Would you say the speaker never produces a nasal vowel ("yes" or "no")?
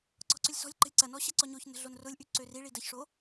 yes